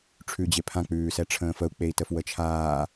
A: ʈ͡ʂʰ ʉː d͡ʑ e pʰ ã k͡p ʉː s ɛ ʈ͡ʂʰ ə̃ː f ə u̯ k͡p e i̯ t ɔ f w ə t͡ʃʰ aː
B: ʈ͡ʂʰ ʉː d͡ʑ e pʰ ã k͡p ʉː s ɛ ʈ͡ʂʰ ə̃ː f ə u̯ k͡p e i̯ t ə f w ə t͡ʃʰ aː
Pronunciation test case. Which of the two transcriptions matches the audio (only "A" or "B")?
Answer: B